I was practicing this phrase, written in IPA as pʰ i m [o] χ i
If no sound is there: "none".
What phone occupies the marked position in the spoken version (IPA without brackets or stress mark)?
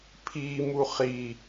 u